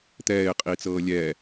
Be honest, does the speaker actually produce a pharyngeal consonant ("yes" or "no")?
no